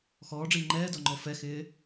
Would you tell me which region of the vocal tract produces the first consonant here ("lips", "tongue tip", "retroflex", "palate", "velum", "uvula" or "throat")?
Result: velum